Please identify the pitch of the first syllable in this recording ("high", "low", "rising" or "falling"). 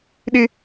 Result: high